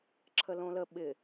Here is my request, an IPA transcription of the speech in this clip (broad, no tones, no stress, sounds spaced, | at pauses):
ǁʰ ə l õ l ə ɓ ɪ